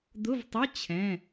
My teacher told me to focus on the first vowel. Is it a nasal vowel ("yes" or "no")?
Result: no